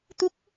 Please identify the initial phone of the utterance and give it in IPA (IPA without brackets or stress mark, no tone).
t̪